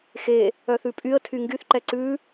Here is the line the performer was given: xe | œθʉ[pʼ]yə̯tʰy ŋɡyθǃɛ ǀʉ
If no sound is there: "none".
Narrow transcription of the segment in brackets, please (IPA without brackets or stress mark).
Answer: pʼ